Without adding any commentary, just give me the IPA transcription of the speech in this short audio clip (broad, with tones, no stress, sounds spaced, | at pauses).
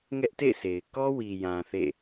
ŋ ɛ˦ ʔ t ḛ˦˨ ɪ̯ s e˨ ɪ̯ k ɔ˦ w i˨ j ã˨ θ ḛ˦˨